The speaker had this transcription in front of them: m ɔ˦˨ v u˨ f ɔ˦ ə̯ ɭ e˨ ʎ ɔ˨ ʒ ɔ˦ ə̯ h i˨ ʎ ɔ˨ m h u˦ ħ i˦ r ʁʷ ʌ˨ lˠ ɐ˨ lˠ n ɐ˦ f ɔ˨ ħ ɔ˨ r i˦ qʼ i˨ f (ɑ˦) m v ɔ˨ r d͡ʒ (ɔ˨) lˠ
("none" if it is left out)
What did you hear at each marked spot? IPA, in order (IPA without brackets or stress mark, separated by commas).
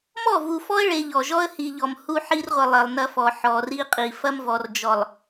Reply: ɐ˦, ɔ˨